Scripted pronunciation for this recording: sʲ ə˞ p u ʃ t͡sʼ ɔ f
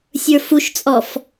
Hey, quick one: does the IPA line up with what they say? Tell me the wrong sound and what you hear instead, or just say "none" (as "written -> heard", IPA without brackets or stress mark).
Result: p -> f